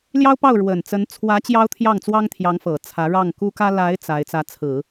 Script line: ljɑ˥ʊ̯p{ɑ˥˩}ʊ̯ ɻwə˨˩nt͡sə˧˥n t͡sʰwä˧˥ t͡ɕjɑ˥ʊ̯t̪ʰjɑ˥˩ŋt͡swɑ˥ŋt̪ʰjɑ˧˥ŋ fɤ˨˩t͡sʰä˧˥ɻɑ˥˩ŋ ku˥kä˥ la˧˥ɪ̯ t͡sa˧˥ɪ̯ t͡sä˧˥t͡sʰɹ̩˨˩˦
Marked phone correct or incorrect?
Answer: correct